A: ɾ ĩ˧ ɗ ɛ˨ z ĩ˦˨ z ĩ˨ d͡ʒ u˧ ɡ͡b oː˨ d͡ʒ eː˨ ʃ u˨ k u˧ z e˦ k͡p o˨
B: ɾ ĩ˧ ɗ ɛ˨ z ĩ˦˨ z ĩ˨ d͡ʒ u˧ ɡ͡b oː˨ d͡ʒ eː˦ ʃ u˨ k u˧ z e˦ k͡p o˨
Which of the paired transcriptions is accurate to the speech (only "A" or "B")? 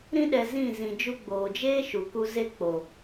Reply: B